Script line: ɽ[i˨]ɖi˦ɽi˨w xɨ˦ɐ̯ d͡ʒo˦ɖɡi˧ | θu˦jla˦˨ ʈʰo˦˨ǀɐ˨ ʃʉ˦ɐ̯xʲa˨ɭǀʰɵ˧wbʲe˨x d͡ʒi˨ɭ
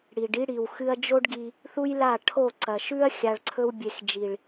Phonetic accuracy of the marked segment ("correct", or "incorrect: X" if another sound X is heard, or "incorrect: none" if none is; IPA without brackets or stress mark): correct